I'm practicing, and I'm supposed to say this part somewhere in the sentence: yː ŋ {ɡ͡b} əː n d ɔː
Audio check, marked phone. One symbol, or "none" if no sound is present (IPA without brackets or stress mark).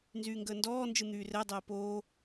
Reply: ɡ